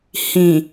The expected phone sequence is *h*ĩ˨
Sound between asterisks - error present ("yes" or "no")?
no